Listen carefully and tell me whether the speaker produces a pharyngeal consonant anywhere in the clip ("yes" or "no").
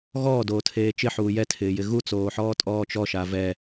yes